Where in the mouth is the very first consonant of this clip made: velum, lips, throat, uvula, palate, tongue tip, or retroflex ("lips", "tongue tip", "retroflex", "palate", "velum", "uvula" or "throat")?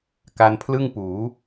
velum